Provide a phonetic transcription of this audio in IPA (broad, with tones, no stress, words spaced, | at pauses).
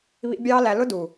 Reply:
βḭ˦ bʲɑː˦læ˧ lʊ˦du˨